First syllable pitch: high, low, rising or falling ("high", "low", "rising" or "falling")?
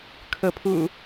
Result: rising